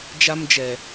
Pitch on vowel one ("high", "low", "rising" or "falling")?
high